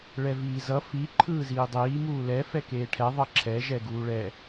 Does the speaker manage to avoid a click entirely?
no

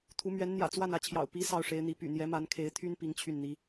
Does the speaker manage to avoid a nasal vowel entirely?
yes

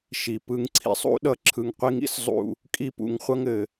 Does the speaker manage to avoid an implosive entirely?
no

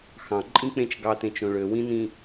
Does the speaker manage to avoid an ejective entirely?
no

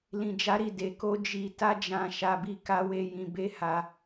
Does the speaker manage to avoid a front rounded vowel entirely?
yes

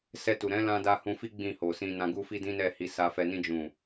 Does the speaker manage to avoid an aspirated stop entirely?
yes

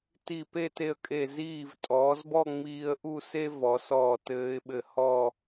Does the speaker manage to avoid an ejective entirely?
no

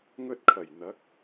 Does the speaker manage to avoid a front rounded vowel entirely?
yes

